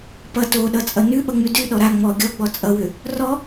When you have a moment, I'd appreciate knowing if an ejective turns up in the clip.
yes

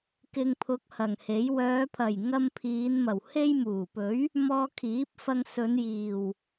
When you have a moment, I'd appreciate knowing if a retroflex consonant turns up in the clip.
no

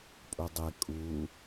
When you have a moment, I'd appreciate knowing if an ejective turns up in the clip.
yes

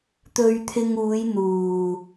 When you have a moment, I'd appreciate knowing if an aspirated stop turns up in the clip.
yes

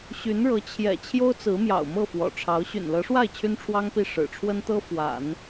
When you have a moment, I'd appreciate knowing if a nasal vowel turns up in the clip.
no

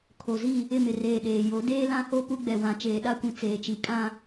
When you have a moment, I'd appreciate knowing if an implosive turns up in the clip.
yes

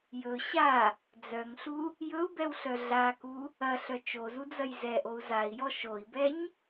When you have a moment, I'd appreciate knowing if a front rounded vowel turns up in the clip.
yes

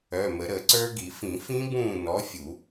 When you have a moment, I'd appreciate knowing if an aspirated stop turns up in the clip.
no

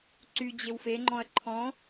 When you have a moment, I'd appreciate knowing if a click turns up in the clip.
yes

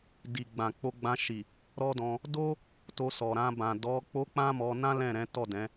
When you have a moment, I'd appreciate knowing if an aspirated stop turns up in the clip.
no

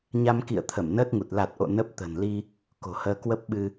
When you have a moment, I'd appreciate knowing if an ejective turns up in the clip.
no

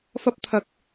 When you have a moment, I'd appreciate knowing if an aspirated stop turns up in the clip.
yes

